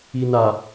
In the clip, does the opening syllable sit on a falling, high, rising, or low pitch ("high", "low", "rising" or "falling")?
low